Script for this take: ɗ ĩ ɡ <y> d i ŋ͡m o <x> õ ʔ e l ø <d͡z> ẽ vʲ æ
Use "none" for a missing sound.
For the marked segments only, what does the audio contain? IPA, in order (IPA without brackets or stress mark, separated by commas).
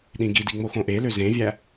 i, x, z